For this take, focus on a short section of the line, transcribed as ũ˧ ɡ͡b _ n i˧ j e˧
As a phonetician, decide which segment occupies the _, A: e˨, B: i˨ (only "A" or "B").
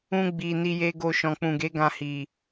B